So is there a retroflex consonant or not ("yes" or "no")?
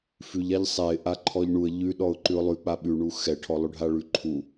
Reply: yes